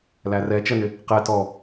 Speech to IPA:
l æ r ɛ t͡ʃ ɜ n ɪ | q ɛ t ɔ

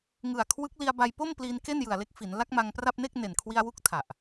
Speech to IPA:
ŋ ɯ˨˩ a̯ kʰ w ɯ˦˥ k̚ l i˧ a̯ b a˧ j p o˥˩ m p l iː˧ n k e˥˩ n j ɯ˨˩ a̯ l e˦˥ k̚ f i˩˦ n l a˦˥ k̚ m a˧ ŋ p r a˥˩ p̚ n e˥˩ k̚ n e˨˩ n kʰ w i˧ a̯ w u˦˥ k̚ tʰ a˨˩ ʔ

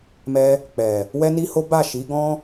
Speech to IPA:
m ɛ˧ | k͡p ɛ˨ | w ɛ˦ n i˦ h o˦ b a˦˨ ʃ i˨˦ ɡ ɔ̃˦

